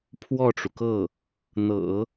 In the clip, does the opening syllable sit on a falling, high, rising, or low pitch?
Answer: falling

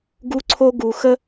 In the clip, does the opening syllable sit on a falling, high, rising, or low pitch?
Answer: high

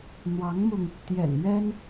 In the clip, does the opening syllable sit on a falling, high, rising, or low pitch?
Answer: rising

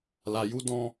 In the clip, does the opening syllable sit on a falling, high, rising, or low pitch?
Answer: low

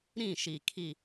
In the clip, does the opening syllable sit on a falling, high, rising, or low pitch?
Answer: falling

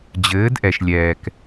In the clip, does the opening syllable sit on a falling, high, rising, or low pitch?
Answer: rising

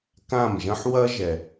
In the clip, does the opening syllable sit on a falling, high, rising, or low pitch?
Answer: falling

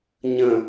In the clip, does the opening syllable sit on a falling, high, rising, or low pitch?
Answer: low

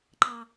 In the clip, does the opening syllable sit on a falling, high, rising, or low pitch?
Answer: low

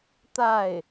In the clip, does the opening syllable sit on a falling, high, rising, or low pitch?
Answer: falling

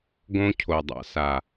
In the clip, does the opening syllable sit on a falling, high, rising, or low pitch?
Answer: high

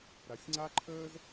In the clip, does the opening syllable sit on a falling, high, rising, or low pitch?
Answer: low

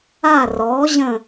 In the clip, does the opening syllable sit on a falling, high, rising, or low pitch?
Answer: falling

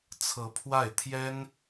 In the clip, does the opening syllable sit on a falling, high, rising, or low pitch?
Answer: rising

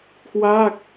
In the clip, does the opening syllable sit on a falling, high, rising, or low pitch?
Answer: falling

